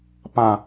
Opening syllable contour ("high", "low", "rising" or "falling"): low